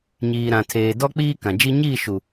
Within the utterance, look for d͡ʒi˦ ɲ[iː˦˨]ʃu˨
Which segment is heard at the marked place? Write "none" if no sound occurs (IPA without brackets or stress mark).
iː˦˨